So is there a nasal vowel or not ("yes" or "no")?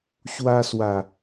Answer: no